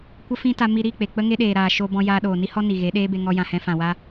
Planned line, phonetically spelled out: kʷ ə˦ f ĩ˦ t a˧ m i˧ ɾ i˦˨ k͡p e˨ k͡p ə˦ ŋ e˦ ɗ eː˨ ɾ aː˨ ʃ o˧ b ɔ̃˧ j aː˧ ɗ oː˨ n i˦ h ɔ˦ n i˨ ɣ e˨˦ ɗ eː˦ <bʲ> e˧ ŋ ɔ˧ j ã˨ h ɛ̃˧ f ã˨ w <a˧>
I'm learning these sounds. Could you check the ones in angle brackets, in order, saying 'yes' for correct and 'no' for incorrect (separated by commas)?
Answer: no, yes